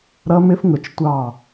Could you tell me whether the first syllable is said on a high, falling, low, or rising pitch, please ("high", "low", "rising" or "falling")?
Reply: high